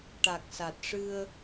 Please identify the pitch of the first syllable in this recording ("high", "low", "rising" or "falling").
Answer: low